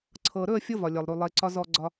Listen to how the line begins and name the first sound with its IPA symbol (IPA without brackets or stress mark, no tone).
ǀʰ